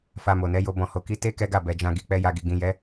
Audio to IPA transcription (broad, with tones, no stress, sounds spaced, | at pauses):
f a˧ m o˨ n ɛ˨˦ j o˧ b ɔ̃˨ h o˨ k i˨˦ t e˦ k ɛ˦ ɡ a˦˨ b ɛ˨ d͡ʒ ã˧ ɡ i˨ k͡p ɛ˧ j a˧ ɡ i˨ ɡ ĩ˨ j ɛ˨˦